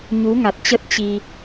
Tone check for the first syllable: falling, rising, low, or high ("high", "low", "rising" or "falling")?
rising